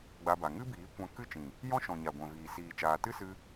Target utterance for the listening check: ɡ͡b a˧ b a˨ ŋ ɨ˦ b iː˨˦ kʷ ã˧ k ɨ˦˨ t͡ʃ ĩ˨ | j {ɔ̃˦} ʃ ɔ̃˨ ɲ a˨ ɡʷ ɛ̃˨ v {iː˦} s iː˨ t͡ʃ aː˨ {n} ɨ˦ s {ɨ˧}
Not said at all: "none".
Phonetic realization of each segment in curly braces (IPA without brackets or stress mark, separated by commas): ɔ̃˦, iː˨, t, ɨ˧